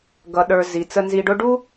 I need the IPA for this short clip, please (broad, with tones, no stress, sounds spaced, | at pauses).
ɡ ʌ˩ ɗ ə˞˩ z i˩ t͡s ə˨ n z i˨ ɖ ʊ˦ ɖ u˥